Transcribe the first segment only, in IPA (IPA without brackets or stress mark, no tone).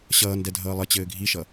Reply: ɕ